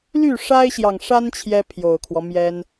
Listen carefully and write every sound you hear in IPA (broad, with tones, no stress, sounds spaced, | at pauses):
l y˥˩ ʂ a˥ ɪ̯ ɕ j ɑ˨ ŋ ʂ a˥ n t͡ɕʰ j ɛ˥ pʰ j o˨˩ ʊ̯ kʰ w ɔ˦ m j ɛ˥ n